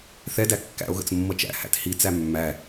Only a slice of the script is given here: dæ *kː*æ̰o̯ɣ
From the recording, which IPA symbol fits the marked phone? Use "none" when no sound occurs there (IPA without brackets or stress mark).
kː